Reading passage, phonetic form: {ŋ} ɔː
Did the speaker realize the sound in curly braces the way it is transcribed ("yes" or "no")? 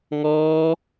yes